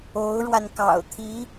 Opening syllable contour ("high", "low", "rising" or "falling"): rising